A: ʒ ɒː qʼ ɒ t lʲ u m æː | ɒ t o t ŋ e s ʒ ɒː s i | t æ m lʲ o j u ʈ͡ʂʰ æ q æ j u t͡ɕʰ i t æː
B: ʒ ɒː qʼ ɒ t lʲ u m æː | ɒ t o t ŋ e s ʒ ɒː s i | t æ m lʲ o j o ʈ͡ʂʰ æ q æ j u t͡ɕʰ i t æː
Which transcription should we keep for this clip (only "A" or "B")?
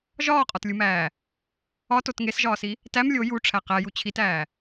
A